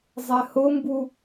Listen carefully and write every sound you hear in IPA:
zˤ ɛ h ʊ m b u

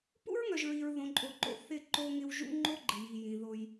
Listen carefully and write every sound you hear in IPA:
p ṵ˦ ɹ ŋ œ˨ ʒ ɹ i˨ ɹ ð õ˨ ǃʼ o˨ ǃ o̰˨ θ ɪ˦˨ ǃ o˦ ŋ ɪ˦ w ʒ ṵ˦ ŋ͡ǃ o˦ ɡ͡ǃ ɪ˨ j i˨ j ĩ˨ ð o˦ j

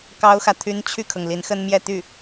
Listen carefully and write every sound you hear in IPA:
k ɑ˥ ʊ̯ x ä˨ t̪ʰ y˥ n t͡ɕʰ y˥˩ kʰ ɤ˩ ŋ l i˧˥ n x ə˥ n m j ɛ˥˧ t̪ y˥˩

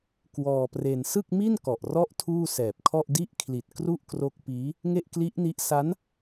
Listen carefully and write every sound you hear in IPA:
k w ɔː˧ p r e˧ n s ɯ˥˩ k̚ m i˥˩ n k ɔ˨˩ ʔ r ɔ˦˥ ʔ tʰ uː˥˩ s ɛː˨˩ p̚ kʰ ɔ˥˩ ʔ d i˥˩ ʔ kʰ l i˨˩ t̚ k r u˥˩ ʔ k r o˦˥ k̚ p iː˦˥ | ŋ e˥˩ ʔ k l i˦˥ ʔ n i˦˥ ʔ s a˦˥ n

